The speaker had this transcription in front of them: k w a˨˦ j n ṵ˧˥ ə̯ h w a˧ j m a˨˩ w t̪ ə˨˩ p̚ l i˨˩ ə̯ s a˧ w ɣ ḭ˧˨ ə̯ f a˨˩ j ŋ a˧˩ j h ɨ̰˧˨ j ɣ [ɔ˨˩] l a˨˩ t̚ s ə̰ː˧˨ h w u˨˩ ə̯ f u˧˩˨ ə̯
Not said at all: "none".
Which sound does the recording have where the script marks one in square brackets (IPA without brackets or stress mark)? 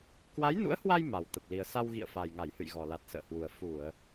ɔ˨˩